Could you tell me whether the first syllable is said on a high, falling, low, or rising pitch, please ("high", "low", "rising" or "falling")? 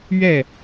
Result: falling